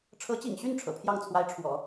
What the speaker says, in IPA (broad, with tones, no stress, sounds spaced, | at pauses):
ʈ͡ʂʰ ɤ˧˥ t͡ɕ ḭ˨˩ ŋ ɕ y˥˩ n ʈ͡ʂʰ ɤ̰˨˩ pʰ j ɑ˥˩ ŋ t͡sʰ w a˧˥ ɪ̯ ʈ͡ʂʰ w ɔ̰˨˩˦